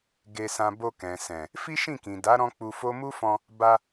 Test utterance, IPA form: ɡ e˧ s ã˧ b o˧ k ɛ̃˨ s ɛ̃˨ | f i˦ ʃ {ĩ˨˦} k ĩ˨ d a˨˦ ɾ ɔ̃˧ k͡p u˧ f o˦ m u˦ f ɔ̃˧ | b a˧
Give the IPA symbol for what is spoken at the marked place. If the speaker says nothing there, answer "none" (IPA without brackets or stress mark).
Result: ĩ˦˨